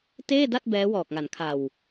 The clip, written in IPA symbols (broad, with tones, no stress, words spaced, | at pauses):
teː˥˩da˥˩t̚ bɛː˦˥ wɔː˨˩k̚ŋa˩˦nkʰa˨˩w